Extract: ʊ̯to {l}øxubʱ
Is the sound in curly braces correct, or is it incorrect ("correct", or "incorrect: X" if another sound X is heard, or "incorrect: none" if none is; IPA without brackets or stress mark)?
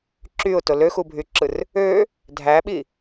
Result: correct